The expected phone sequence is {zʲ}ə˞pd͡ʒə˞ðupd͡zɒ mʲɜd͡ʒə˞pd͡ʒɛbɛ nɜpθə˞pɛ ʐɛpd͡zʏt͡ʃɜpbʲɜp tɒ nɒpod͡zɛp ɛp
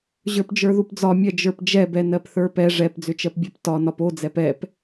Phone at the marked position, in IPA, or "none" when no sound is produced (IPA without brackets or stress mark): ʑ